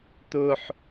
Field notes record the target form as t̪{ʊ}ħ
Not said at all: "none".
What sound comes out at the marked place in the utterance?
ʊ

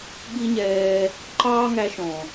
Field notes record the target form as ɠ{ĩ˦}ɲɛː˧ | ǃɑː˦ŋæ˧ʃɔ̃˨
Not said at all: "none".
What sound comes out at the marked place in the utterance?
i˦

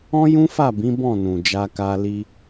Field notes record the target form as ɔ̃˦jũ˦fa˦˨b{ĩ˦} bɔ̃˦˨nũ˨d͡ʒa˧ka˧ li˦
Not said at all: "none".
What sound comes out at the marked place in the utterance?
ĩ˨˦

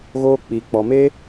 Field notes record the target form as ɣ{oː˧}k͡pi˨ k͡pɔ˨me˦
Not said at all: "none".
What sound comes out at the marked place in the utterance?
oː˧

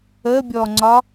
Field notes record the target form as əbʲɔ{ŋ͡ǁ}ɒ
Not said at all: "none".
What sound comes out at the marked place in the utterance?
ŋ͡ǀ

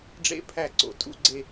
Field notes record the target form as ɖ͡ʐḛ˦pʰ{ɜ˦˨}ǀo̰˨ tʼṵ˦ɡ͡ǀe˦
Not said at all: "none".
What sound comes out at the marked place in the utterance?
æ˦˨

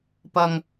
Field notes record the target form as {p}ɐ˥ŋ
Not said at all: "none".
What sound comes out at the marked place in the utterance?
p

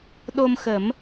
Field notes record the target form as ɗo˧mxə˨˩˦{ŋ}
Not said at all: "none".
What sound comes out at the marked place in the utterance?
m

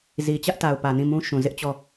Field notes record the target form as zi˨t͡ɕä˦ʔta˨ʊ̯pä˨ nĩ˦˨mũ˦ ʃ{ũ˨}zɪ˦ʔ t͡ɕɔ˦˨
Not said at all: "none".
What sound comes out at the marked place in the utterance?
ũ˨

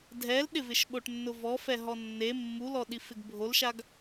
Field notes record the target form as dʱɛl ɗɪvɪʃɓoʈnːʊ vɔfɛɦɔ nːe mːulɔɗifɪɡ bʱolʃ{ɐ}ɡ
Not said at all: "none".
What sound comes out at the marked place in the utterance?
a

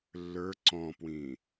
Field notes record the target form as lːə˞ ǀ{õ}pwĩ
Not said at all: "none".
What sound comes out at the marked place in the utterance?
ɔ̃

